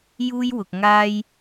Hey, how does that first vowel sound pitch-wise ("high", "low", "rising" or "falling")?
high